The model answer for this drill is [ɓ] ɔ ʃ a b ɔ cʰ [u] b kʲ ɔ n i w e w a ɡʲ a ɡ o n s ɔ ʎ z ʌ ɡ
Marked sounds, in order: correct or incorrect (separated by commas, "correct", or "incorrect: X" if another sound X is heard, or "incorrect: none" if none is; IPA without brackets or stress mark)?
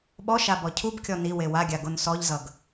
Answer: correct, correct